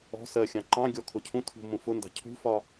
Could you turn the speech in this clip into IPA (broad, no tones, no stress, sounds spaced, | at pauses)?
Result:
ɔ̤ s ɜ xʲ ɑ̃ ǃ ɑ̃ ɡʲ ɔ kʰ ʊ cʰ ũ tʰ ṳ m ũ f ʊ n d ɑ̤ cʰ ṳ f ɒ